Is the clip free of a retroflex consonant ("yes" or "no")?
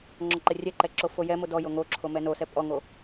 yes